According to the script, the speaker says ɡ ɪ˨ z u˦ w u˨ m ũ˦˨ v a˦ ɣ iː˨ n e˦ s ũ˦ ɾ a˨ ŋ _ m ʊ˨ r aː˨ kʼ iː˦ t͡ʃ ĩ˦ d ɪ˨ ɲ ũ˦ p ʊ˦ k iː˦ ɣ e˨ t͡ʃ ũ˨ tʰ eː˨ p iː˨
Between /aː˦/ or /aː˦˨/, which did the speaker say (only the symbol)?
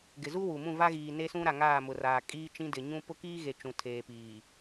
aː˦˨